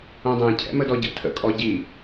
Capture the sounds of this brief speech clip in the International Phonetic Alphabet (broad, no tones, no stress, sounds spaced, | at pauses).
õ dˤ ɛ̃ cʰ ɛ̰ m ə d ɔ ɟ ə̰ tʰ ə̰ kʼ ɔ ɟ i